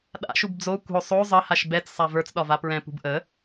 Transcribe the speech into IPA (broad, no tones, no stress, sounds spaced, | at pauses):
ɗ a̰ ʃ u b d͡z o kʷ ə̤ o̯ sˤ o zˤ ə h a ʃ b ɛ t͡s sˤ a v ə˞ t͡s ɗ ɒ v a p ɹ ɛ̃ p ṳ b ʔ ə